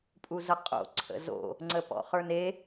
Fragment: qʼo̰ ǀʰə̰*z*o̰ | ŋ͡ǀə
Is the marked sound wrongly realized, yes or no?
no